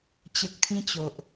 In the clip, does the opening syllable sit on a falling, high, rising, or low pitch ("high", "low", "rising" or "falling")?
low